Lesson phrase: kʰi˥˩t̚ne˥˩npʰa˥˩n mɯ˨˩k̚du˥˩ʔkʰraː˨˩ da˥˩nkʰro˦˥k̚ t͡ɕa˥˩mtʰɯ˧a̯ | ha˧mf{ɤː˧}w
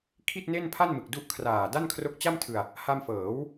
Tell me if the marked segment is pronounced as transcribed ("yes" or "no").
no